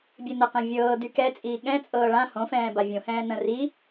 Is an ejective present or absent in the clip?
present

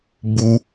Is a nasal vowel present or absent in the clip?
absent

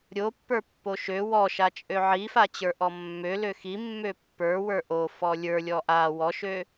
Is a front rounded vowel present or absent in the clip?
present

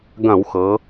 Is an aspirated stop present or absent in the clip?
absent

